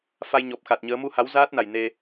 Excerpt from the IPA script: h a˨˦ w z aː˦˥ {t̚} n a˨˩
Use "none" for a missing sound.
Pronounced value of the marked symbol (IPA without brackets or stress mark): t̚